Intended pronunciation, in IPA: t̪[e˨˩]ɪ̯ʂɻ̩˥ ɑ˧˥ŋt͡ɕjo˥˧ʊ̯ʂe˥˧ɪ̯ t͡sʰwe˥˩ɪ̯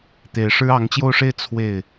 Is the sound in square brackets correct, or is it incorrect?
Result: correct